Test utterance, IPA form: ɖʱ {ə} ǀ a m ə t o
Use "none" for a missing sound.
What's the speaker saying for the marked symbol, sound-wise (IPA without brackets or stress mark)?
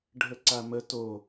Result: ə